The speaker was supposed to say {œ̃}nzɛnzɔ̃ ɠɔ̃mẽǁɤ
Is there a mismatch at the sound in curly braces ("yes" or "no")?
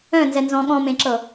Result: no